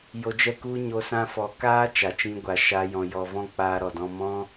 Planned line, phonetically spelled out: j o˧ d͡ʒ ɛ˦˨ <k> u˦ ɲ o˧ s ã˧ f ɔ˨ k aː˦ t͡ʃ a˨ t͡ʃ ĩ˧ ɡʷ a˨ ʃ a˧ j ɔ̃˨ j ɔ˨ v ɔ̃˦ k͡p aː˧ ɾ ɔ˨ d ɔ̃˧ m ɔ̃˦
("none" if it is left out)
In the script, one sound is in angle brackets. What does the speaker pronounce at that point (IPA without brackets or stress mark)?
k